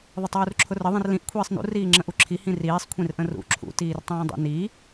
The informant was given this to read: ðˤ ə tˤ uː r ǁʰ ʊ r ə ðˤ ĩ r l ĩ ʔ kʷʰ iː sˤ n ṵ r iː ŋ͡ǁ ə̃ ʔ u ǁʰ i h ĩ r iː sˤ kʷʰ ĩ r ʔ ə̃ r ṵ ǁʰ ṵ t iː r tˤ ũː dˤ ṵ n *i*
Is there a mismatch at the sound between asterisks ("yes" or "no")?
no